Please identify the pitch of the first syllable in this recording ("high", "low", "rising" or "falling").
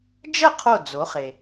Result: falling